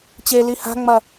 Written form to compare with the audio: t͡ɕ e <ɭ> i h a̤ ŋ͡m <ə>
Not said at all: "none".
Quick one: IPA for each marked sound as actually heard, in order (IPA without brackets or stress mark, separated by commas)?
l, ɐ